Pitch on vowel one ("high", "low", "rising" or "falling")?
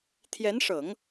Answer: rising